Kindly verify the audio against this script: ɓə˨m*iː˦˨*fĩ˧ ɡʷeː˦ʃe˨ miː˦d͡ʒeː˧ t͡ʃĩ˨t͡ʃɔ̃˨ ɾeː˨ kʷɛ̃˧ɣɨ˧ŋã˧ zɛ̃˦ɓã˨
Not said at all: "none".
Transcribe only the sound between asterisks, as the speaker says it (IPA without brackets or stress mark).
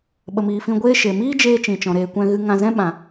iː˨